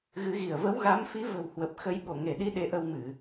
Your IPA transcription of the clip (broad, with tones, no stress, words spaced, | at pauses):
ɣɨ˨˦ɣi˧˩ə̯ və˨˦wɣa˨˦mfi˨˦ və̤˨˩w hwə˨˩p̚xə˨˦j ɓo˧˩ŋe˧˩ɗi˧ ɗe˧ʔə˧wmɨ˧˩˨